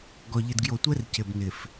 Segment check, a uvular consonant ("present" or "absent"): absent